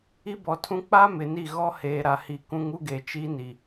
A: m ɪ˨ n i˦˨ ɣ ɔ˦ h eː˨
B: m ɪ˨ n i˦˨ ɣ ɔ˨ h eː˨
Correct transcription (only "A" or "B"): A